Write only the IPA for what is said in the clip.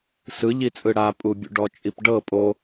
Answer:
sɯʎit͡sʼɯ ɽapʼubʲṵɖɔ t͡ʃʼipɖɤ pʼo

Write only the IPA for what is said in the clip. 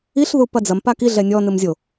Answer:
iɬðu pɐd͡zɐmpa kiɮɛ nʲɔnɨm zʲo

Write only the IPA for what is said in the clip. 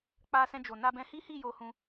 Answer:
k͡pa˧sɛ̃˧d͡ʒo˨ na˧bɛ̃˧ hi˦hi˦˨ jo˧hũ˧

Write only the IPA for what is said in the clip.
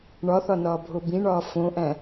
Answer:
ɳɒθɒnɒːbʱo bĩɳɒː fõʔæ̃

